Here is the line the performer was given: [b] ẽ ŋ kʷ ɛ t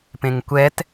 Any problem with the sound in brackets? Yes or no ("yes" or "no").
yes